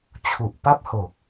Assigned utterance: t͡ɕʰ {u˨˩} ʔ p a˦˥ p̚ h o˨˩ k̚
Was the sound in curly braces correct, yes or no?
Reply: yes